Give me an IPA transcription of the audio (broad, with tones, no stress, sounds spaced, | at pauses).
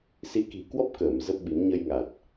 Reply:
s i˨˦ k i̤˨˩ k w ɔ˦˥ p̚ k əː˧˩ m z ə˦˥ p̚ ɓ i˨˦ m ɲ ə˧ j ŋ a˨˩ t̚